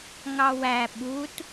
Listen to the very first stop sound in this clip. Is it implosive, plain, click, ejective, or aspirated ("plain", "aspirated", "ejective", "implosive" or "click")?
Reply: implosive